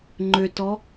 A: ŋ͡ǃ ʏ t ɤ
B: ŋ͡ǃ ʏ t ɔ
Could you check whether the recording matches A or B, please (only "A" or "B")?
B